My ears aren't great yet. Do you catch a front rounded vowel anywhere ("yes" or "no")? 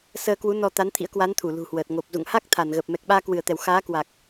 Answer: no